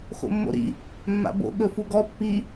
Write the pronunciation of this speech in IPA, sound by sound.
x o̰ mː o̰ ɾ ḭ | mː a̰ b o̰ ɠ ɵ f u ɡ ɔ pː i

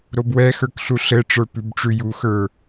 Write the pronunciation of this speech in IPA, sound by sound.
ɾ o b w ɛ x ə˞ k ɬ u ɬ ɘ ʈ͡ʂ ə˞ p ʉ b ʈ͡ʂ ʉ j u x ə˞

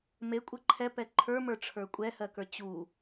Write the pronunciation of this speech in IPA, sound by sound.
m e kʷʼ ə ǃʰ ɛ p ɛ ǃʰ ə˞ m ə˞ ʈ͡ʂʰ ə˞ kʷʼ ɛ h ɜ k ə˞ t͡ɕ u

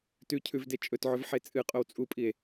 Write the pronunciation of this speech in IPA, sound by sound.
t ʉ cʰ ʉ v d e t͡ʃʼ ɵ t ʕ ɵ v ħ e t͡sʼ ɨ qʼ o w t͡sʼ u pʼ i e̯

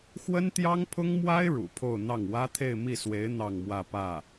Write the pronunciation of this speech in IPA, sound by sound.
x w ə˥ n t̪ j ɑ˥ ŋ pʰ ʊ˥ ŋ m w a˥ ɪ̯ ɻ ṵ˨˩ pʰ o˥˧ ʊ̯ n̪ ɑ˥˩ ŋ w ä˥ t̪ʰ e˥˧ ɪ̯ m i˥˩ s w e˧˥ ɪ̯ n̪ ɑ˥˧ ŋ m w ä˥˧ p ä˥˩

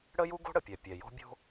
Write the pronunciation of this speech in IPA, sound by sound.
ɽ ə˥ j u˥ ɡ o̤˥ ɽ ə˩ pʲ ɛ˩ pʲ ɛ˩ j o̤˥ bʲ o̤˥

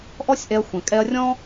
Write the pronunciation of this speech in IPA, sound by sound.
ʔ ɔ˦ sʲ ʔ ɛ˧ ɐ̯ xʷ ɛ̃˨ kʼ ɛ˧ ɐ̯ rʲ ɔ̃˦

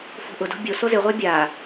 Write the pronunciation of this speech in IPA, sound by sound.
f o̤ ʔ ʊ d o̤ bʲ o s o z ɪ ʁʷ a bʲ aː

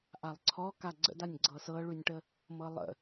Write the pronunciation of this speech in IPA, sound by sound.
ʔ a lˠ ǀʰ ɔ k a ɡ͡ǀ ə̰ d a nʲ ɡ͡ǀ ɤ s ɤ ɭ ʉ nʲ ʈ ə | m ɤ lˠ ə̰

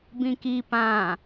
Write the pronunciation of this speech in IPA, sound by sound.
b ĩ k i p ã

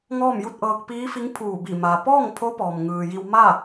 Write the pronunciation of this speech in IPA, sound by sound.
ŋ ɔː˥˨ m j u˥˨ t̚ ʔ ɤː˧ k̚ p iː˧˥ f i˧˥ ŋ pʰ uː˧˩ b i˧˩ m a˩ p ɔː˥˨ ŋ pʰ o˧˥ p ɔː˩ m ŋ ɯː˩ j i˧ w m a˥˨

